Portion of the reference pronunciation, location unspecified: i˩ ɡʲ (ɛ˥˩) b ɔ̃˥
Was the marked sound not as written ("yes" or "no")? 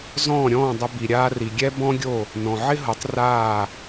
yes